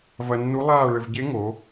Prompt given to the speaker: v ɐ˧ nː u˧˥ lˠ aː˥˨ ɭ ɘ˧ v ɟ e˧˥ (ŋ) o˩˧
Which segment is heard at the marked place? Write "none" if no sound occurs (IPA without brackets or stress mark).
ŋ